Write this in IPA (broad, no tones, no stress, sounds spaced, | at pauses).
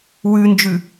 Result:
w ʉ n d͡ʒ ʉ